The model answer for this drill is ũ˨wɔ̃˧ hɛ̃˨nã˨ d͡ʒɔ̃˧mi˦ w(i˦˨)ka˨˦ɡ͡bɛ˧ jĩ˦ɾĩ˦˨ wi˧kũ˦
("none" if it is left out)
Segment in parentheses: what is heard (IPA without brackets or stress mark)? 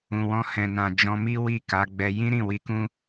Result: i˦˨